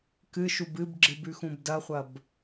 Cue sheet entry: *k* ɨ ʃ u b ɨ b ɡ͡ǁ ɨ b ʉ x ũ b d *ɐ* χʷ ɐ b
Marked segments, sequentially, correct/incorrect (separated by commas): correct, correct